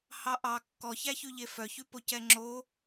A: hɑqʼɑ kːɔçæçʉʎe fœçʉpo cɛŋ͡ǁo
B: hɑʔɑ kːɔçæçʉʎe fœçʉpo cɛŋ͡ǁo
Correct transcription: B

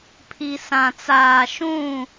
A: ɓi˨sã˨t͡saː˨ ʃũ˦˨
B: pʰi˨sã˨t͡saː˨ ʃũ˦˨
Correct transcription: B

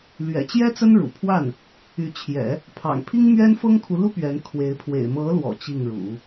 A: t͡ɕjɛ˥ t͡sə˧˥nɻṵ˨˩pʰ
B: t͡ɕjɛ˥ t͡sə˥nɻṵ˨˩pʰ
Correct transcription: B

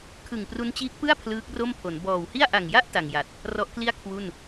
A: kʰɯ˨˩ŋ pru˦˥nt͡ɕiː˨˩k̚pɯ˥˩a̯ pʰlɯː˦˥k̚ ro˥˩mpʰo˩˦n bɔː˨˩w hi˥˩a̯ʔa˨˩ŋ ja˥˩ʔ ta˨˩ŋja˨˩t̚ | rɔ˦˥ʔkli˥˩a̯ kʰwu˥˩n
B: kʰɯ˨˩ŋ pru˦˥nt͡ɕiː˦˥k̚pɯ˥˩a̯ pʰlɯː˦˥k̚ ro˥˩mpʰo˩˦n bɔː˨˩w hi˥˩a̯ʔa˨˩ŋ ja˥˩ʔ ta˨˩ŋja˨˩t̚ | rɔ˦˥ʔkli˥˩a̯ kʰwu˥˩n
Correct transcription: B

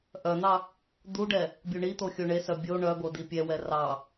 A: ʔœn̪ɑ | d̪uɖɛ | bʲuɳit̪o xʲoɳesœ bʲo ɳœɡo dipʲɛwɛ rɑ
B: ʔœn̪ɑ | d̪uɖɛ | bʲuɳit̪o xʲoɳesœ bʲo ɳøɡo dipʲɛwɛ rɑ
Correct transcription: A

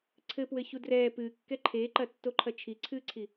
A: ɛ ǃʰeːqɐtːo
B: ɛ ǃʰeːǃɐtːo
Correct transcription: B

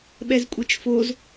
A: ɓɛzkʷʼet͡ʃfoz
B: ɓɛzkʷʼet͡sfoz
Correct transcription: A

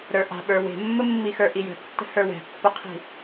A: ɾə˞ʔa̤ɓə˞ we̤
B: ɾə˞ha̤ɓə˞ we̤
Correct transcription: A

